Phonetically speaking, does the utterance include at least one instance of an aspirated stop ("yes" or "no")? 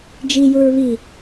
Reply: no